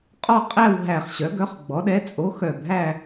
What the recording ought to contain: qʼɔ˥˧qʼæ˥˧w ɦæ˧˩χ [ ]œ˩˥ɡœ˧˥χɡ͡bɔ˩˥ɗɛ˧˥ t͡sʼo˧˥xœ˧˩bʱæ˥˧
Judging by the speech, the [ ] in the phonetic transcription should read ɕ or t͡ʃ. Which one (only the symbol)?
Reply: ɕ